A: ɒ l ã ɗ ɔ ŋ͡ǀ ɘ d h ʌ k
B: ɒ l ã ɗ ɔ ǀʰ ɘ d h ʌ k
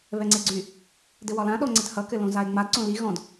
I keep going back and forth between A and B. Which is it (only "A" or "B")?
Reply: A